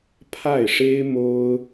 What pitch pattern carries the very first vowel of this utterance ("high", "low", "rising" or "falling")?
falling